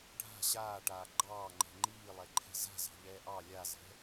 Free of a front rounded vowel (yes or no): yes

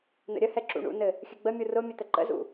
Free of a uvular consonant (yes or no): yes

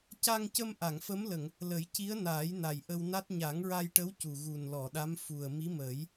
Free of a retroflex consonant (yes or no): no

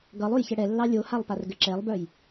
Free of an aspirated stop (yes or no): yes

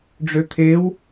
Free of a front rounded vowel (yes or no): no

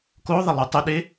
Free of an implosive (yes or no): no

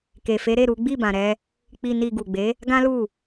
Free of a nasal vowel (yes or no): no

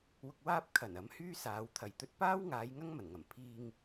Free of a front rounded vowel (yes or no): no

